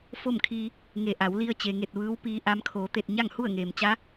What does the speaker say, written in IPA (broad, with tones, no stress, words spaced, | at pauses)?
fo˥˨mkʰiː˧ | ŋe˧˩ʔa˩˧wli˧ə̯ t͡ɕe˩ŋe˧˩t̚ ʋɯː˧˥wpiː˧ ʔa˧m kʰoː˩˧t̪e˧˩t̚ ɲa˥˨ŋhu˥˨ə̯ŋeː˩m t͡ɕa˧˥